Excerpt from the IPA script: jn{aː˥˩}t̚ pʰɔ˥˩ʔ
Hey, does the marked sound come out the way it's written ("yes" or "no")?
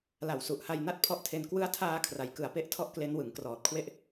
no